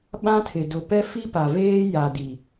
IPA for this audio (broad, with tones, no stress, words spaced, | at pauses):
ɓã˦tʰɪ˨ dʊ˨ pɛ˦fi˦pa˨veː˦ ja˨ di˨